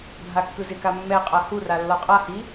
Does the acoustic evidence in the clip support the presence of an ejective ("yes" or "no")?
yes